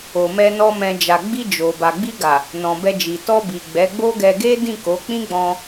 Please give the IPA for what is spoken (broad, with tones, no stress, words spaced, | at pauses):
o˨mɛ˧nɔ˧ mɛ̃˨ d͡ʒa˨ɡ͡bi˧ d͡ʒo˨ ba˨ɡ͡bi˧ɡa˨ | nɔ̃˨bɛ˧d͡ʒi˨ tɔ˧ bi˨ ɡ͡bɛ˨˦ɡ͡bo˦ɡɛ˧ ɡe˦ dĩ˦˨ko˨˦ k͡pĩ˦ ɡ͡bɔ̃˧